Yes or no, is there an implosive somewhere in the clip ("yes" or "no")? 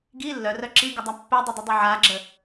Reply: no